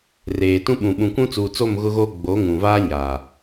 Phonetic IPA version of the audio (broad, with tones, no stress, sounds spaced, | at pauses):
r eː˨ t ũ˦ ɓ ũ˨ ɓ ũ˨ kʷ ũ˦ t͡s uː˨ t͡s o˦˨ m ɣ ʊ˦ ɣ oː˦ ɡ͡b o˨˦ ŋ ũ˨ v aː˦ ɲ aː˨